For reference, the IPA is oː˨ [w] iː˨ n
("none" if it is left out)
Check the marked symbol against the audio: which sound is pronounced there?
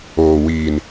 w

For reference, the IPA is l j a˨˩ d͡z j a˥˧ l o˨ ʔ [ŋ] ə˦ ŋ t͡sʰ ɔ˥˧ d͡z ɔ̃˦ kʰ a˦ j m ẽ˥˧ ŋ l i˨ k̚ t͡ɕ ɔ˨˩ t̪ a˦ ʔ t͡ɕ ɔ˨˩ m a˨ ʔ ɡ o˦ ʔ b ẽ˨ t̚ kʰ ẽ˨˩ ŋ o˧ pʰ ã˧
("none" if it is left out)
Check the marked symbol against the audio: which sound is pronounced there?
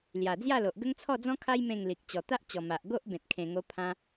ɡ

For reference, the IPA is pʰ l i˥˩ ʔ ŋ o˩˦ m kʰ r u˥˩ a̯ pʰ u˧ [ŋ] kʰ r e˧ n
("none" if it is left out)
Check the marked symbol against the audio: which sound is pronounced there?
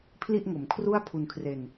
n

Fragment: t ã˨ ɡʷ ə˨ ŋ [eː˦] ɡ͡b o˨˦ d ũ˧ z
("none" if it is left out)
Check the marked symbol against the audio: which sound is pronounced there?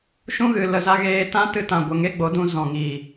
e˦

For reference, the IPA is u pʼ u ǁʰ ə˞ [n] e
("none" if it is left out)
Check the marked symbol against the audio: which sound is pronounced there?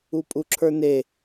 n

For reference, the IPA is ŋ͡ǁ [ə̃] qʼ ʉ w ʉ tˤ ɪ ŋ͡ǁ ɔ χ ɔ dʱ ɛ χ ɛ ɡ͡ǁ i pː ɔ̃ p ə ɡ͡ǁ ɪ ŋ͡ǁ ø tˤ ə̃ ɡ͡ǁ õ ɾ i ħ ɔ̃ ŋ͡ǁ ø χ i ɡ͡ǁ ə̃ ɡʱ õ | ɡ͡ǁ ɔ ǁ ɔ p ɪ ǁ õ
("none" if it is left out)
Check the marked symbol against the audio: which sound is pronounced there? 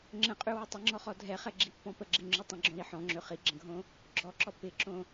ə̃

